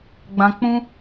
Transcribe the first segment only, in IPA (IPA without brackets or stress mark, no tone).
ɡ͡b